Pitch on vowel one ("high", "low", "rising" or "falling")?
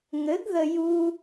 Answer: rising